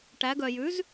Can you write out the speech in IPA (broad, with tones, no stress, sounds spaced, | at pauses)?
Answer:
ʈ æ˩˧ ɡ œ˩ j ʉ˩˥ z